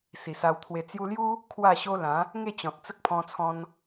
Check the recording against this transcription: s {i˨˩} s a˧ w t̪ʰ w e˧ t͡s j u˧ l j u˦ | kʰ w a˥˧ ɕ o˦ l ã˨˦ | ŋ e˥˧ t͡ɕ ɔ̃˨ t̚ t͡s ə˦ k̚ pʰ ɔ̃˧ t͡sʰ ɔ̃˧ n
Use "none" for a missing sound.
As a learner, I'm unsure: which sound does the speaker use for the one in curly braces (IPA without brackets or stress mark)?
i˨˩